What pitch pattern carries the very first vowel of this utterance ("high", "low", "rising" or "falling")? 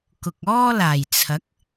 low